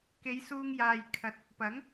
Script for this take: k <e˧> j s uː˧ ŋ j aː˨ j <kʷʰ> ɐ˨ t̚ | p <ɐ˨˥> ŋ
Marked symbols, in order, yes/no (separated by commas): no, no, yes